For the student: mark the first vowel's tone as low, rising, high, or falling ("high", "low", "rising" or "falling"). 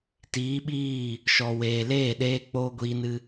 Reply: rising